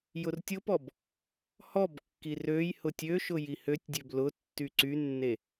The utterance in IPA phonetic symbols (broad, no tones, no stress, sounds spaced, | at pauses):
j ʊ r tʲ ʊ p ɔ b | h ɔ b kː i r ø j h ʊ tʲ ø ʃ ʊ j i h ø tʲ dʲ ø b l ʊ tː y ǀ y nː e